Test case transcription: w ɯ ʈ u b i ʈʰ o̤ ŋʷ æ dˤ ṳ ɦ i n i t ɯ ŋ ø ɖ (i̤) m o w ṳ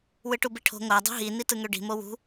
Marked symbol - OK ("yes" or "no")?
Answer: yes